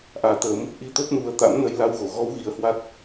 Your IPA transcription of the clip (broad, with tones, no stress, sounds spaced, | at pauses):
ʔ aː˨˦ t̪ əː˨˦ m | ʔ i˧ t̪ o˦˥ p̚ n u˨˦ ə̯ t̪ a̰˧˥ m n ə˧ j l a˧ w ɣ o˧˩ ɣ ɔ˨˦ w ɣ i˨˦ ə̯ h w a˦˥ t̚